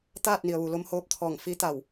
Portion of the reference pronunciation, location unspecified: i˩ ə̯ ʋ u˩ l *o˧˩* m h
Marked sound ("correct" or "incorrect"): incorrect